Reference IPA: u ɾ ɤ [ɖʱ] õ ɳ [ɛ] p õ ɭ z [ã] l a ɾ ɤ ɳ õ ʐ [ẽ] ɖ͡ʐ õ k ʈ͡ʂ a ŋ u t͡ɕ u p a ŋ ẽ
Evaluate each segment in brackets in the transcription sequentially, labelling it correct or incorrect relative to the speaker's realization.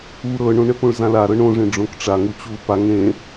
incorrect: ɳ, correct, correct, correct

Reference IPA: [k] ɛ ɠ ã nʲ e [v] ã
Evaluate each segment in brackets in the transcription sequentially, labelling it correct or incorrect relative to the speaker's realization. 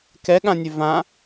correct, correct

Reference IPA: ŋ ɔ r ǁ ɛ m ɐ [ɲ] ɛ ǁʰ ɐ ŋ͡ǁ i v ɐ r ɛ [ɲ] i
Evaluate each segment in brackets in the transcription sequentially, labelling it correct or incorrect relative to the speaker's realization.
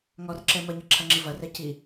correct, incorrect: c

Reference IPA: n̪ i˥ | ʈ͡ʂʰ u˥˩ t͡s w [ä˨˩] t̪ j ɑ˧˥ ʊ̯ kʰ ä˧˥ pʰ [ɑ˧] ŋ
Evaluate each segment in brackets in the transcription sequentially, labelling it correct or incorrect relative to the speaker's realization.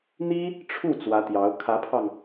incorrect: ä˧˥, correct

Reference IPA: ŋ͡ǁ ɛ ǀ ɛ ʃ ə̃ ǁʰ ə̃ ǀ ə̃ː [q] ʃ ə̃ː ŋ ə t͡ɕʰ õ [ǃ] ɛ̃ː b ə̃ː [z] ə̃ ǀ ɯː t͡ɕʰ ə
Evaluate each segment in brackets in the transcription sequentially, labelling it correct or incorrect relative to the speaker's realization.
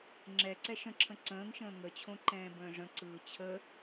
incorrect: ŋ, correct, incorrect: ʐ

